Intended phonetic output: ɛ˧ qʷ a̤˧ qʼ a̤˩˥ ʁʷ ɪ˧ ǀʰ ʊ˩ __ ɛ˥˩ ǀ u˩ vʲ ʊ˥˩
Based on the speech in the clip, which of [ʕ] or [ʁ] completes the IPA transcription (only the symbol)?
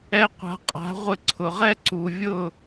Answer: ʁ